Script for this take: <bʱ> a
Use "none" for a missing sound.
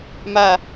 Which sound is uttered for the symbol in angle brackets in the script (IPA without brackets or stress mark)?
m